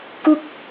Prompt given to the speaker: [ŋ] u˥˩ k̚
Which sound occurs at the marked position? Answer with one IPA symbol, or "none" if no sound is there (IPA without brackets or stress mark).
k